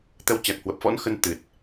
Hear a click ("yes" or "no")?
no